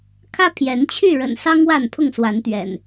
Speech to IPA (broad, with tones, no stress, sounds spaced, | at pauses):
kʰ ä˦ pʰ j ɛ˨˦ n t͡ɕʰ y˥˨ ɻ ə̰˨˩ n s ɑ˦ ŋ w a˥˨ n pʰ ʊ˥˨ ŋ s w a˨˦ n t̪ ɥ ɛ̰˨˩ n